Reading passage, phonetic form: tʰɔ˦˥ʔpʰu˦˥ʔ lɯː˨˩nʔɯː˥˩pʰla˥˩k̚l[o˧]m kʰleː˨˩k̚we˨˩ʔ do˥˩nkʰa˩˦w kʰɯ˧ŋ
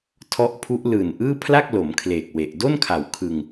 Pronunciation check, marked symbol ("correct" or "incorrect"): incorrect